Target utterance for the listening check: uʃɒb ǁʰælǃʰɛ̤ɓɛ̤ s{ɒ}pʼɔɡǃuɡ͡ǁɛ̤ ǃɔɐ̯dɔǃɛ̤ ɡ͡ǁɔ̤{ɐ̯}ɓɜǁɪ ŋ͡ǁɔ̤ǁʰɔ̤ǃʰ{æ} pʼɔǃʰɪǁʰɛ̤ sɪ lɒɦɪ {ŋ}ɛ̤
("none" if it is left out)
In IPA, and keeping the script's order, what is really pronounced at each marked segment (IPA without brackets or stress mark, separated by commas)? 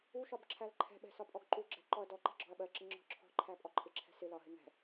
ɒ, ɐ̯, æ, ŋ